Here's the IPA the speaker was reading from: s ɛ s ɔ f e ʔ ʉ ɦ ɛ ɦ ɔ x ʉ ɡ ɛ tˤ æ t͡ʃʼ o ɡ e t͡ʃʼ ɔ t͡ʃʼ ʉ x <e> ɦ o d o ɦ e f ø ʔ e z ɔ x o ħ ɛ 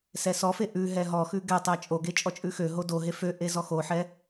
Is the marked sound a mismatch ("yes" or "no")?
yes